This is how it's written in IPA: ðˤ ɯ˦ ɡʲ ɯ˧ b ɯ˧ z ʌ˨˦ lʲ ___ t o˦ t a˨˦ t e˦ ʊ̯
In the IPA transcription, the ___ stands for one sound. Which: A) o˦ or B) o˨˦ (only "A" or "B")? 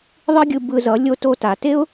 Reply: A